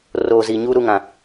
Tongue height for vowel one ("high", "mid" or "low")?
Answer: mid